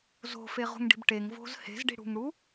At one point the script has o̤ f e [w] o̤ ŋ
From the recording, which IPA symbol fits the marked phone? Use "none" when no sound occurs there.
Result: ʁ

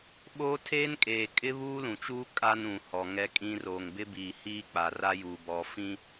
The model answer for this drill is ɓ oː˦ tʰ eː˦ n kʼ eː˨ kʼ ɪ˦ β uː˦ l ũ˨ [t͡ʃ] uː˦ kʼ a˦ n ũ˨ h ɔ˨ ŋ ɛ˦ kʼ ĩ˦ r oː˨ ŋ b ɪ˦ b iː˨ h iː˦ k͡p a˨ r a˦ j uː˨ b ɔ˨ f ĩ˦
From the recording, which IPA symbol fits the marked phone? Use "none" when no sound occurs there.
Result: t͡ʃ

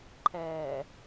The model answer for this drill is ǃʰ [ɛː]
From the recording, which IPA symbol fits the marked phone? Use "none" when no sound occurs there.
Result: ɛː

